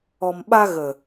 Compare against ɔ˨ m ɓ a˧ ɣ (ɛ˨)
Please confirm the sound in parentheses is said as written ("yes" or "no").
no